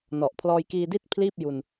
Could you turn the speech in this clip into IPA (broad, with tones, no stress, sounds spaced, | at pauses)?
n ɔ˨˩ ʔ pʰ l ɔː˧ j k iː˧ d i˥˩ t̚ pʰ l iː˥˩ p̚ j u˧ n